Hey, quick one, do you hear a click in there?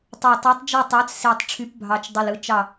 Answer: no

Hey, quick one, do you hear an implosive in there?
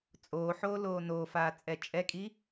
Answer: no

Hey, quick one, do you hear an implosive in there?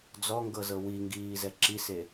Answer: no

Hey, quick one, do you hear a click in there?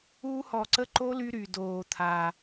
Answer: yes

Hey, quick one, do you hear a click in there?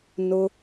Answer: no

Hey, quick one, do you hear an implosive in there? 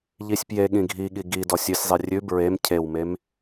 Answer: yes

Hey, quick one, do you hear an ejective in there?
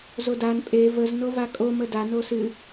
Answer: yes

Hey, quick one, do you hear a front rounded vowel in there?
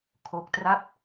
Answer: no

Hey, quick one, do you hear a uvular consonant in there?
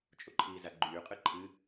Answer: yes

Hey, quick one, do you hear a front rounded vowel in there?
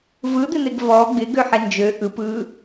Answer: yes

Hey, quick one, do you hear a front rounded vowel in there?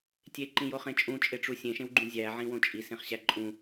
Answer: no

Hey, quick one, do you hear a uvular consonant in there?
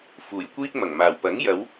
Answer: no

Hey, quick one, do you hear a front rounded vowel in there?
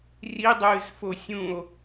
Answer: no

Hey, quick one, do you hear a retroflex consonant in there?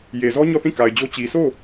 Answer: no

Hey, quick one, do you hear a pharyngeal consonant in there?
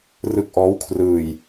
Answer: no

